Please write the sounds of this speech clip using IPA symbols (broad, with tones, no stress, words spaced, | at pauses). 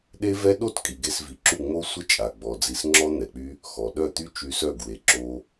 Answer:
ɗe˦ vɛ˦ ɗo˦t kʼi˨ɡe˧svi˨ǁu˦˨ ŋ͡mo˦sʷə˦t͡ʃʼa˨ ɡ͡bɔ˧d͡zi˦s ŋ͡ǁɔ˦n̪ɛ˨k͡py˦ | xɔ˨ ɗœ˦˨t̪y˦ t͡ʃy˧sœ˦˨ɡwe˨ ǁo˦